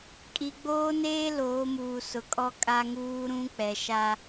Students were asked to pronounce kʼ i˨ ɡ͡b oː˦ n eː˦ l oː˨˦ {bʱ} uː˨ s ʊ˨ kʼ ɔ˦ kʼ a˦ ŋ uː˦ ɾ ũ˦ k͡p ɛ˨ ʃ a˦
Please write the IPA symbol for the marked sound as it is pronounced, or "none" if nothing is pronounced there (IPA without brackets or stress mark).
m